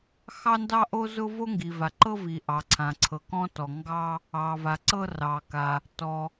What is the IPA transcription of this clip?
xɑ˥ndɑ˥ʔo˥zʊ˥ vo˥ŋɡi˩va˩ ǃɤ˥vi˩ ʔɑ˩ǀʰã˩ǀʰɤ˩ kɔ̃˥tɔ˩ŋɡɑ˥ | ɑ˩va˩ ǀɤ˥ rɑ˩ka˩ | tɔ˩

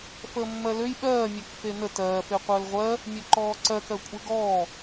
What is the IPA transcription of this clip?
fəːmːɜløj ɓɜːmʲøk fenə tɜːfeqʷəːl ʁʷɜ | mʲøǃɔːǀɜkɜ kʷʼeɡɔː

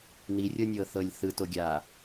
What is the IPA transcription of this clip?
nirʲɤnʲɤθɤlʲ θɯtoɡʲaː

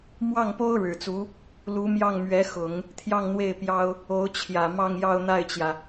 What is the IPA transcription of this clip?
mwɑ˥˩ŋpo˥ʊ̯ ɻɻ̩˨˩t͡su˧˥ | lu˧˥mjɑ˥˩ŋ mɥɛ˧˥ xʊ˨˩˦ŋ | t̪ʰjɑ˥˧ŋn̪we˥˩ɪ̯ pjɑ˥ʊ̯ | o˧˥ʊ̯t͡ɕʰjä˨˩ mɑ˥˧ŋjɑ˥˧ʊ̯ n̪a˥˩ɪ̯t͡ɕjä˩

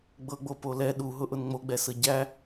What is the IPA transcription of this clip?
ɡ͡bɤɡ͡bopo lɛ ɗuɦʊʔʊn ŋ͡moɡ͡bɛsɤ ɟæ

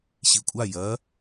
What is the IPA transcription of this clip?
ɕikʷʼa jɐ

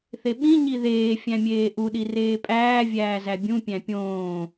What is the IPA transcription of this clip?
θeɓĩ ɲiðeː fʲæ̃mʲeːʔu ɗireːpʼæː vʲæːzæbʲũ pʲæ̃pʲõː

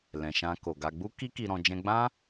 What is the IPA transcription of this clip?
lɛ̃˨ʃã˧ko˨ɡa˧ ɡ͡bu˦ki˦ki˧ ɾɔ̃˧ d͡ʒɛ̃˧ɡ͡bã˦

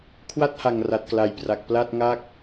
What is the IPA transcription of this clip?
kʰwa˥˩t̚ha˨˩ŋra˨˩t̚ kla˨˩jpra˨˩k̚ pla˥˩t̚ŋa˥˩k̚

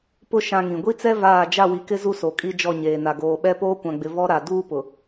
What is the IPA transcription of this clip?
pʊ˦ ʃã˦ŋĩ˨ ɡʷi˦t͡sɛ˦ vaː˦˨ d͡ʒa˦˨wi˨kɪ˦ zu˦so˨ kʼi˦d͡ʒɔ˦˨ɲeː˨na˨ ɡoː˨ɓɛ˦ poː˦kʷã˨ɡ͡bɪ˨ vɔ˦ɾa˨ duː˦pʊ˨

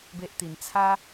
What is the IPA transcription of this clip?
be˦ʔt̪i˧n t͡sʰa˦

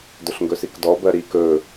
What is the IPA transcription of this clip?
dɵɬŋɡɵsikdɔ bɜɾi kɵ

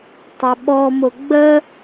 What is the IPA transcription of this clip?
tˤeɓɔmʊ ɡ͡bə

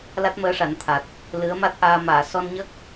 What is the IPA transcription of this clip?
la˦˥t̚məː˧ʂa˨˩˦nt̪ʰa˨˩t̚ | lɨ˧˥ə̯ma˦˥t̚ʔaː˧ maː˨˩˨sɔ˧nɲə˦˥k̚

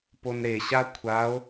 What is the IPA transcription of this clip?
ponɾe ɕakʷʰao̯

